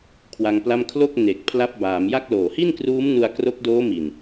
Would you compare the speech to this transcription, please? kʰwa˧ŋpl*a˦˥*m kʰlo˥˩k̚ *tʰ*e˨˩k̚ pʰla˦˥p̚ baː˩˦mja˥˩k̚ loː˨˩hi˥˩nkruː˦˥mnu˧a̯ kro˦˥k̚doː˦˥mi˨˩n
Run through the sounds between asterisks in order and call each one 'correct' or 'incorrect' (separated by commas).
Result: incorrect, incorrect